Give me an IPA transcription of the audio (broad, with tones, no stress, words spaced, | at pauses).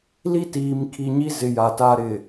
li˦tiː˨m kʰi˨ɲi˦ zɪ˨ ja˨ta˦ ɾɪ˨